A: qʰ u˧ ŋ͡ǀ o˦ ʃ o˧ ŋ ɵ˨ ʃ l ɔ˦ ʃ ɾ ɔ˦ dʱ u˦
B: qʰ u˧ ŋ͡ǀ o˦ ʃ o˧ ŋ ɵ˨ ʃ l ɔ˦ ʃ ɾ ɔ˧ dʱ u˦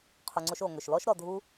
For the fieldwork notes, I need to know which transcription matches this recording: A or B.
B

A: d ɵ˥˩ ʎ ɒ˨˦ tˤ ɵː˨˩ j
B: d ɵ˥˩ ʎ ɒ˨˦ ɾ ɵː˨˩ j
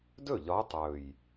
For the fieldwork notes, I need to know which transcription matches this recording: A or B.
A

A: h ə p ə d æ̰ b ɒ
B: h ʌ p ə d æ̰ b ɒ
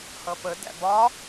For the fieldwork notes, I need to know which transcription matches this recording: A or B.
B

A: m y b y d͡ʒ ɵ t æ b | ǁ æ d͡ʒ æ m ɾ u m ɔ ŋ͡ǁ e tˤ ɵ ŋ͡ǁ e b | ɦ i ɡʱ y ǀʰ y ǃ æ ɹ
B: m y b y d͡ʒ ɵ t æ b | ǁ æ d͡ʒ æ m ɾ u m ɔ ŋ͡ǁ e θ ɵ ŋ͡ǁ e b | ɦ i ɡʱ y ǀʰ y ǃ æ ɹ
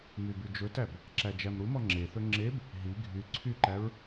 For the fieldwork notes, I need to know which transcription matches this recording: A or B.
B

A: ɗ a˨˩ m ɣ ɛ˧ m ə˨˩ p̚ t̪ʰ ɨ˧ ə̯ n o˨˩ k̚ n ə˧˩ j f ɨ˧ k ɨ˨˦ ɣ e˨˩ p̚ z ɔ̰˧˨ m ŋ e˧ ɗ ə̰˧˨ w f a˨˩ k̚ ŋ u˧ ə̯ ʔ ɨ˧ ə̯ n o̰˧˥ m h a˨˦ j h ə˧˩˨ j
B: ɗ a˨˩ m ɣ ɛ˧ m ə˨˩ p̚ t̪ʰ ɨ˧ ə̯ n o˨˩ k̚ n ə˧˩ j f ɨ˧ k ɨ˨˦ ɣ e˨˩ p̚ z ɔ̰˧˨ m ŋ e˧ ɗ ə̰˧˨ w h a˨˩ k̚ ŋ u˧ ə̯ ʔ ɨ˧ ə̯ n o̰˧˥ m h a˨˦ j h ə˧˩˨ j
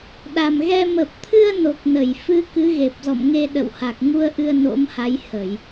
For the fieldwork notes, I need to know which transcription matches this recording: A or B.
B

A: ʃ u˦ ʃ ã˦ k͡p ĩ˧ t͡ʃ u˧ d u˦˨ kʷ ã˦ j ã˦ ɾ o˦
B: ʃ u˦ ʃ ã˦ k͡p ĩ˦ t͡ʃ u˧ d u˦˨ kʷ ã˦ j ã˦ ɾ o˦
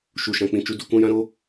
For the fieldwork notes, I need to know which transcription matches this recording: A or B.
B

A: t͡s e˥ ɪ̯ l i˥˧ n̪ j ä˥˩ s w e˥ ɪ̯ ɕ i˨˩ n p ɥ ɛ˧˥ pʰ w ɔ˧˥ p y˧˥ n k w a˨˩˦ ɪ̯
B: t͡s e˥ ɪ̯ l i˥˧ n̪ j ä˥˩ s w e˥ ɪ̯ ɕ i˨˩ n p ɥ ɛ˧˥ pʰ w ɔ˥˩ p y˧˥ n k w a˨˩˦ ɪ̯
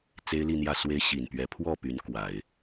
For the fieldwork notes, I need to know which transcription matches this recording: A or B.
B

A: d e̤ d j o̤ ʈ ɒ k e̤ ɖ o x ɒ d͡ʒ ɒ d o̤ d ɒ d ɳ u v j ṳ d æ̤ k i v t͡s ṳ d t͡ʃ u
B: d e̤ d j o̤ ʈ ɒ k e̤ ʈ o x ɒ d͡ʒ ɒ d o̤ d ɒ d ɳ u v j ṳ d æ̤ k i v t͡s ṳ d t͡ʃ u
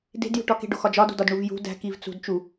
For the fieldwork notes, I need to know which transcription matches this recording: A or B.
A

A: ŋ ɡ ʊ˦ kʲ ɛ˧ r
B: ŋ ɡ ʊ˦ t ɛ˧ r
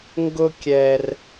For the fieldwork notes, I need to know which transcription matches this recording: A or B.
A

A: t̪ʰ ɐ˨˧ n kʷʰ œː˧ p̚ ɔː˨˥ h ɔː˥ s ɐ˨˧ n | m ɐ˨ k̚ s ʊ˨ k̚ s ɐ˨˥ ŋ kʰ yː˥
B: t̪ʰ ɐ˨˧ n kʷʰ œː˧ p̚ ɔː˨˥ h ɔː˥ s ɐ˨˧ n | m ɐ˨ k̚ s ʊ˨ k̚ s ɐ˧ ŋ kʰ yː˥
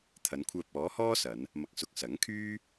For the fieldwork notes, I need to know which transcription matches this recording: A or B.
A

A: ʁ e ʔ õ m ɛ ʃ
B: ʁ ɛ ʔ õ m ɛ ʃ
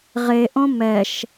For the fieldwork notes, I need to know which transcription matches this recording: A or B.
A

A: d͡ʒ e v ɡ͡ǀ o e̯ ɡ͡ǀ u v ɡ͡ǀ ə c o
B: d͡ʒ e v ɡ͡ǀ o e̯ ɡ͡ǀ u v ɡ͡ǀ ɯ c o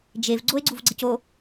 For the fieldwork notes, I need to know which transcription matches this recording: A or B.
A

